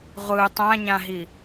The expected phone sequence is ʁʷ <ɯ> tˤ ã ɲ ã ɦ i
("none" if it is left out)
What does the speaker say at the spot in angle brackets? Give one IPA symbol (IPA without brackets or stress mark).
ɯ